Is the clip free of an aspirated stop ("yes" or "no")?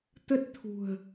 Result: no